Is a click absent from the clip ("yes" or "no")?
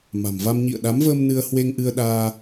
yes